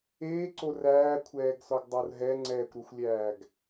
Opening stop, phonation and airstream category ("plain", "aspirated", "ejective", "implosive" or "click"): click